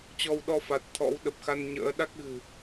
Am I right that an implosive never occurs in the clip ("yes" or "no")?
no